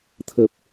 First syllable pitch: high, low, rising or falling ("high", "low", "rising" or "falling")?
low